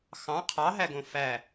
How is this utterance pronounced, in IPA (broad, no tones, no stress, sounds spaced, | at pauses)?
x ɑ̃ qʰ ɑ ɦ æ ɡ õ f æ